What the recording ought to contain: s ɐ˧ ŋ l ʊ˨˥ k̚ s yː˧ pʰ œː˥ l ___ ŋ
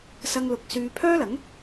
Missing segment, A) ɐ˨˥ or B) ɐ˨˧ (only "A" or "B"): A